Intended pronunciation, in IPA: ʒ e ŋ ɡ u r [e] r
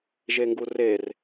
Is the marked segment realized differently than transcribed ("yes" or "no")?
no